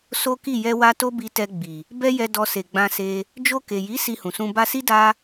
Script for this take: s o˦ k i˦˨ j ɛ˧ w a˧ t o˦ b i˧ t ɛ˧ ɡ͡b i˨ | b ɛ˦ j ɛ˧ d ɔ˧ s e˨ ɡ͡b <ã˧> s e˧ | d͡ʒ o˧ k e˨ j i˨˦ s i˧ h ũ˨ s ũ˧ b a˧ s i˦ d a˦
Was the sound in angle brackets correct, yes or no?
yes